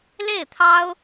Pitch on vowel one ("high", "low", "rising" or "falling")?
falling